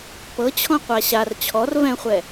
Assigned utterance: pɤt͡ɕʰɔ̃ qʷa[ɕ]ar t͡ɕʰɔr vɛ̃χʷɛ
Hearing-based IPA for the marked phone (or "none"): ɕ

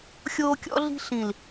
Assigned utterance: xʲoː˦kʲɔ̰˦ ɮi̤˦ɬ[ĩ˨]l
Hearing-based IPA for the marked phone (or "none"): ĩ˨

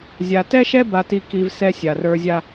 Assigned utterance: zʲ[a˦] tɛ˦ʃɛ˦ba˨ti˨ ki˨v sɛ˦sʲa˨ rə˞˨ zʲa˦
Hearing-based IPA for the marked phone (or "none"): a˨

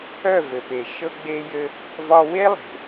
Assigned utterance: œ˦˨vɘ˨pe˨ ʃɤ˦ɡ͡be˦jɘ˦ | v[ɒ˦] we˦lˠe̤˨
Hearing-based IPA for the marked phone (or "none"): ɒ˦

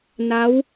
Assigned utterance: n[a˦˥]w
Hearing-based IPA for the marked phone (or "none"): a˦˥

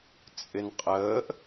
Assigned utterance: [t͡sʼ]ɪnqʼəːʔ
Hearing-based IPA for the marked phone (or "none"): t͡sʼ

